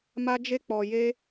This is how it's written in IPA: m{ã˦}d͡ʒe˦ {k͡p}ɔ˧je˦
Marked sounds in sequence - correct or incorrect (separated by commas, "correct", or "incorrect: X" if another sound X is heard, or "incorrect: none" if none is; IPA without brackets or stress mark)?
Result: incorrect: a˦, correct